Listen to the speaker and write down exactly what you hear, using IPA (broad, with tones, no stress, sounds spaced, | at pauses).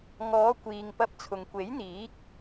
ŋ ɔː˨˧ kʷ iː˨ ŋ p ɐ˧ p̚ t͡sʰ ʊ˨ ŋ kʷ e˨˥ j n̪ iː˨˥ k̚